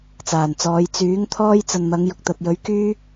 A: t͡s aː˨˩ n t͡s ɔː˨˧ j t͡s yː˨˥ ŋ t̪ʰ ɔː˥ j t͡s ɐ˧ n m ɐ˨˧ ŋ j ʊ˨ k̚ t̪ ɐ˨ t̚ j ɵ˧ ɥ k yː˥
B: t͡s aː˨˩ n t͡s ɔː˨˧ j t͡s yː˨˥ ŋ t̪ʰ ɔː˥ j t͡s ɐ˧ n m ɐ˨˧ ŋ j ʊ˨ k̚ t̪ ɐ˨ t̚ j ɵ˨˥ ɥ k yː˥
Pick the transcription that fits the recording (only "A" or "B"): B